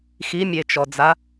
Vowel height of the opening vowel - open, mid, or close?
close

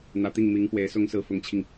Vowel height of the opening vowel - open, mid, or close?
open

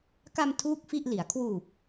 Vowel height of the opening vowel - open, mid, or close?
open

